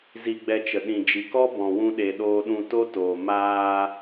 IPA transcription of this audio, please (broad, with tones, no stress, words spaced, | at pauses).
zi˧ɡ͡bɛ˧t͡ʃə˨ ɗĩ˨d͡ʒi˨kɔ˦ bɔ̃˨wũ˧ɗe˨ ɗoː˧ɗũ˧to˦toː˨ maː˧